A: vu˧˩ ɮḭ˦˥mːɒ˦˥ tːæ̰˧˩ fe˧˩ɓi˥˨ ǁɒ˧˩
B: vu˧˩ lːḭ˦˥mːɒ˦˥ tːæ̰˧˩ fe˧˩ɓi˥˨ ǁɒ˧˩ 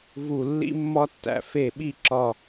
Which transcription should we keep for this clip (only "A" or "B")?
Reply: B